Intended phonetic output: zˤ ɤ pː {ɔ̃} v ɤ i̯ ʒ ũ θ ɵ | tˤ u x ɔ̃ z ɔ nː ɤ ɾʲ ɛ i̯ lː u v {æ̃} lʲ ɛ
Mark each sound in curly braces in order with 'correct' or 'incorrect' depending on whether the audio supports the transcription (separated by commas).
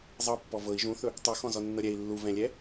incorrect, incorrect